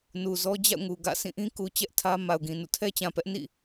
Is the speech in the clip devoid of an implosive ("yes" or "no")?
yes